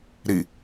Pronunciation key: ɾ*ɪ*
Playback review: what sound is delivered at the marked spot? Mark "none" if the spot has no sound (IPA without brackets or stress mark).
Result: i